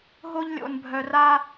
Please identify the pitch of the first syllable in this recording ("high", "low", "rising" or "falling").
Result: high